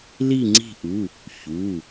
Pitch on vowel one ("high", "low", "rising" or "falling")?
falling